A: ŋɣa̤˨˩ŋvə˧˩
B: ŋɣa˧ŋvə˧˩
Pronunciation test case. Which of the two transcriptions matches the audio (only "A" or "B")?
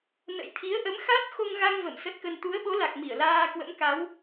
B